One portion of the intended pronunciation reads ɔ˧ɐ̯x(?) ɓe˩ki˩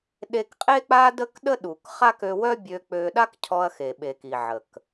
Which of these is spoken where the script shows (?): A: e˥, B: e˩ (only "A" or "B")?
B